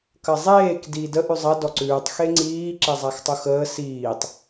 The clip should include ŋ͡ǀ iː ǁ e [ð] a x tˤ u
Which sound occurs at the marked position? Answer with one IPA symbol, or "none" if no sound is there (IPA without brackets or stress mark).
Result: zˤ